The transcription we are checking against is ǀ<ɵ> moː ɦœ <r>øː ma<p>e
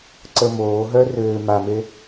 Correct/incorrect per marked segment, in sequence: incorrect, correct, incorrect

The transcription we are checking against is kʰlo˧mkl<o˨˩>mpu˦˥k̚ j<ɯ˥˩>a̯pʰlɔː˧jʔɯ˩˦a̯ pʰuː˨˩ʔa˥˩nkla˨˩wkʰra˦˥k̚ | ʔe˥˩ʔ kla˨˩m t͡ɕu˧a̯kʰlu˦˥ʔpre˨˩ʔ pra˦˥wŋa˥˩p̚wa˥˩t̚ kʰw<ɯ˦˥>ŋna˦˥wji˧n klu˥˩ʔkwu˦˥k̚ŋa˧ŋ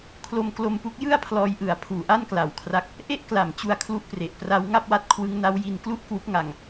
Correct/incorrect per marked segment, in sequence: incorrect, correct, correct

